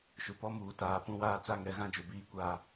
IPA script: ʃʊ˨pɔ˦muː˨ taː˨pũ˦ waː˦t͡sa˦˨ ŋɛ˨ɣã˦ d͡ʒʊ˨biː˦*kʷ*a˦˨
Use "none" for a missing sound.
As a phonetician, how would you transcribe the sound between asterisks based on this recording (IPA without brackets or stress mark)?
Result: kʷ